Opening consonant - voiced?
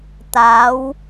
no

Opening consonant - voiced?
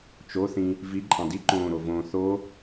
no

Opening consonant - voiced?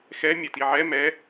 no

